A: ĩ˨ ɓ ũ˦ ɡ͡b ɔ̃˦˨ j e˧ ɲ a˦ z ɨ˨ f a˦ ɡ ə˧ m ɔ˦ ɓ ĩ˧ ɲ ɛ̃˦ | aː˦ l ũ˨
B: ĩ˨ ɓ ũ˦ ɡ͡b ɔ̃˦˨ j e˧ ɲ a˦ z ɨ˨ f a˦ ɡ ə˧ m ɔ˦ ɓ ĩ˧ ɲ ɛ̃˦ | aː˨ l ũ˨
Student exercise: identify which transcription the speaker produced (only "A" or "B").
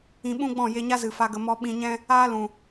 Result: A